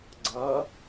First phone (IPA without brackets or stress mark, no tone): ɡ͡ǀ